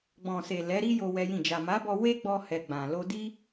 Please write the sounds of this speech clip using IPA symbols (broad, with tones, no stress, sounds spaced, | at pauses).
ɡ͡b ɔ̃˨ s e˨ l ɛ˨˦ ɾ i˦ j o˦ w ɛ˦ j ĩ˦˨ d͡ʒ a˨ m a˨˦ b ɔ˧ w e˦ ɡ͡b ɔ˧ h ɛ˨ ɡ͡b ã˨ l o˧ d i˦